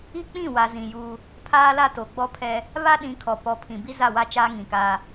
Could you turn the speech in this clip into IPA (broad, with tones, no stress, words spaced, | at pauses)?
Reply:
i˦k͡pĩ˦˨wa˨zĩ˨ juː˦ | pʰaː˦la˦ to˨ɡ͡bɔ˦pʰɛ˦ | βa˦ɗĩ˨˦kʰɔ˨ pɔ˨pʰĩ˨ bi˦za˦˨wa˦ t͡ʃaː˦ŋĩ˨kaː˦